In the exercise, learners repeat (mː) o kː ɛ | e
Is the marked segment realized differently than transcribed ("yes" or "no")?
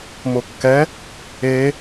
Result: yes